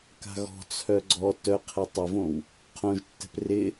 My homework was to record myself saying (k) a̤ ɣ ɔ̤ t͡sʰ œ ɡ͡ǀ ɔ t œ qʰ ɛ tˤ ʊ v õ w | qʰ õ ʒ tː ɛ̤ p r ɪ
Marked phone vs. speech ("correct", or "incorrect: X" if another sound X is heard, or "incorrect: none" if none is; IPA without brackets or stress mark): correct